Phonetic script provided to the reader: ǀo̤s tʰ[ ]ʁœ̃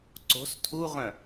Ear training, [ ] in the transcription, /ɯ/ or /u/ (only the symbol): u